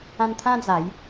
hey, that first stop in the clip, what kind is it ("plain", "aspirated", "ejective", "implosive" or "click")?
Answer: aspirated